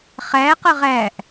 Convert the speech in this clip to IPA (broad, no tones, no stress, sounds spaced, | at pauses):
χ æ q ə ʁ æ ʔ